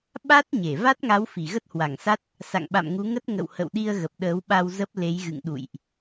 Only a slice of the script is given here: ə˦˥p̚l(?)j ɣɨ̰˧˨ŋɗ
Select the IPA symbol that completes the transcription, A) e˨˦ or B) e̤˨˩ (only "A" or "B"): A